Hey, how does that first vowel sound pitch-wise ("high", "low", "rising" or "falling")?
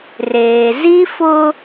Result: low